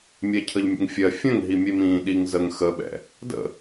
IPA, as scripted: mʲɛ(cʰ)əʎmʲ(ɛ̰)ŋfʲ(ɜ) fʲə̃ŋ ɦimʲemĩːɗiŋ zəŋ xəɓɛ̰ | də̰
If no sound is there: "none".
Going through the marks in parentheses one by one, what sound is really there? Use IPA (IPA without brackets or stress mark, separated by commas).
cʰ, ə̰, ɜ